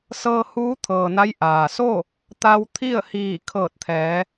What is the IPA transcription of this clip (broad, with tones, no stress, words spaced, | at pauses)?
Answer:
sɤː˧huː˧˥t̪ʰɤː˩ na˧˥jʔaː˩ so˥˨ | t̪a˧wt̪ʰi˥˨ə̯hiː˧˩ kʰɤː˧˩t̚t̪ʰɛː˩˧